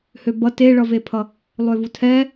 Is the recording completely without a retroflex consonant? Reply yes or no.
no